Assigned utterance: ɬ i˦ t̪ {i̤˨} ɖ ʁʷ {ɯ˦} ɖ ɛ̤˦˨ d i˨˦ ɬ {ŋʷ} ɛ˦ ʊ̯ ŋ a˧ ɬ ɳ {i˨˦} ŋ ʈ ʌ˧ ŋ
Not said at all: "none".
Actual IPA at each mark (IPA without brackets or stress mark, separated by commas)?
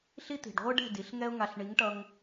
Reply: i̤˨, ɯ˦, ŋ, i˨˦